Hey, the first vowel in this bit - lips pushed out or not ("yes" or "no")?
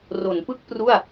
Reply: yes